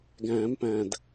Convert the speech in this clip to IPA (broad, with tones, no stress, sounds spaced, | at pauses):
ɡ æ̃ː˨˩˦ m p æ̃˨˩ d